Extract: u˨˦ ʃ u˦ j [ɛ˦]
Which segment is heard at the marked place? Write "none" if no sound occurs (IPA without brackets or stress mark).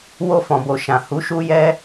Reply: ɛ˦